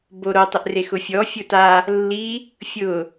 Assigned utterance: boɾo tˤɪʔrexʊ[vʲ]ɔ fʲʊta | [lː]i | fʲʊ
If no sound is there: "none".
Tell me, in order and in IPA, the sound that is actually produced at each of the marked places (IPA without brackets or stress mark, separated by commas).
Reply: fʲ, lː